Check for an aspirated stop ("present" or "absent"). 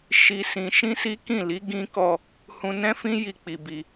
absent